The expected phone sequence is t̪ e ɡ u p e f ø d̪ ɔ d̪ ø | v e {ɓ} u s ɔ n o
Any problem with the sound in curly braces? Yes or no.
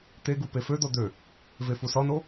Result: yes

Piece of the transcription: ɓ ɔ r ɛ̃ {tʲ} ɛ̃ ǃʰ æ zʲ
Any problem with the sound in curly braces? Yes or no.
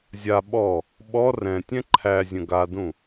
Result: no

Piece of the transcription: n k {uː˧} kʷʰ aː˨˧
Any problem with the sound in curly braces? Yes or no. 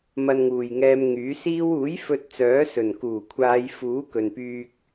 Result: yes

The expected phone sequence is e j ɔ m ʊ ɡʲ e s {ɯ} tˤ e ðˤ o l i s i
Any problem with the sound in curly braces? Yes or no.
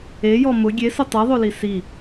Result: yes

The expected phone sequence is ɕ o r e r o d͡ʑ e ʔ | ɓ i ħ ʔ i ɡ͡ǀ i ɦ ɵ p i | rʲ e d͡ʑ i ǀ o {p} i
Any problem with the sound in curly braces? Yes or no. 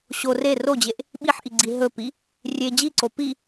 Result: no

